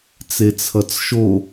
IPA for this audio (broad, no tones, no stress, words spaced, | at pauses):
t͡set͡sʰʌt͡sʃo